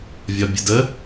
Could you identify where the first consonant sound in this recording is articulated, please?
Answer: labial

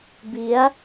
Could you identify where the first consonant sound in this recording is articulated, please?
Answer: labial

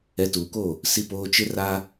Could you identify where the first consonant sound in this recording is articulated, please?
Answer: alveolar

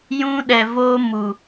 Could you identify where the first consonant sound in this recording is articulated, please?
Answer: palatal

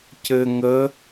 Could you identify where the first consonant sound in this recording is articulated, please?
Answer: palatal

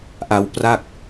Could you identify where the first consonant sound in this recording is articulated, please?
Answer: glottal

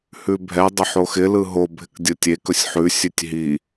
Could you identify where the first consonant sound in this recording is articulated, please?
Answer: glottal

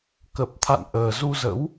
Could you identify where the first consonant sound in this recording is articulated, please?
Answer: velar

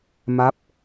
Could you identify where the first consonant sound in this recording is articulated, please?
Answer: labial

